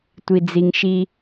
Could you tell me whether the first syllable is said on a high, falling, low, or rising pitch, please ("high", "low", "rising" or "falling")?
low